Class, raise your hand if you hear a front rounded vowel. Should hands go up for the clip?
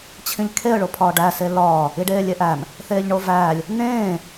no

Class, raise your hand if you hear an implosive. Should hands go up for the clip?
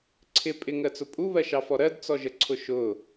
no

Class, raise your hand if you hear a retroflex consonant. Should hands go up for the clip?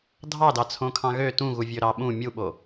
no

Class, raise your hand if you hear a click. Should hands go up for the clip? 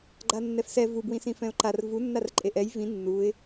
yes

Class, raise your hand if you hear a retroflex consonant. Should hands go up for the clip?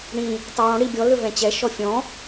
yes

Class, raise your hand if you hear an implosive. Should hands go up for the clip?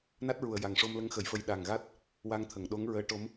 yes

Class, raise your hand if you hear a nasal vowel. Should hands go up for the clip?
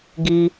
no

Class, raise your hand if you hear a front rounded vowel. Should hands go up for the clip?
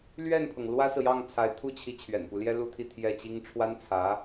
no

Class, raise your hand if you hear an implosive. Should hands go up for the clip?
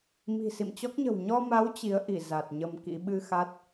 yes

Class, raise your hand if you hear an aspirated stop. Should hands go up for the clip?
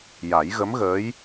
no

